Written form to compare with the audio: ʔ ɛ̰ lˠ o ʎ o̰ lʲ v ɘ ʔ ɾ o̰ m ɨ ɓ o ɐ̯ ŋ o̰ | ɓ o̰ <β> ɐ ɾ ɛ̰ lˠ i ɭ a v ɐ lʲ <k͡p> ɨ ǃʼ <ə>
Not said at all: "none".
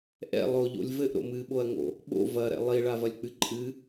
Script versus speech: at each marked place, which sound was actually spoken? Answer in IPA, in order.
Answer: v, k͡p, ɨ

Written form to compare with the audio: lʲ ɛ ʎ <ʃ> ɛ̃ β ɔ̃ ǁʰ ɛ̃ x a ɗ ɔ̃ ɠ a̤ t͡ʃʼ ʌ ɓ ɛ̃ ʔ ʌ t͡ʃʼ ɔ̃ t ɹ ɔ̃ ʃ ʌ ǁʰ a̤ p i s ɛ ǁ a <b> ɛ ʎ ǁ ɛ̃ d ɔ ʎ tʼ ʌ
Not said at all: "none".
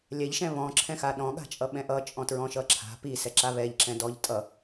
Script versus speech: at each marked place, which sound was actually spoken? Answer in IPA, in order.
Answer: ʃ, β

